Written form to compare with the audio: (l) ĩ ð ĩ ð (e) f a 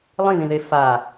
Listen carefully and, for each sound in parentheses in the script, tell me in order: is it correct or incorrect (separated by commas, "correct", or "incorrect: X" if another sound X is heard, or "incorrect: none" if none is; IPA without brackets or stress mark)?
incorrect: lˠ, correct